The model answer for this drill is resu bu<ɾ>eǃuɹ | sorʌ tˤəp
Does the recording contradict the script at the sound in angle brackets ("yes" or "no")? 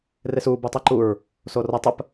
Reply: yes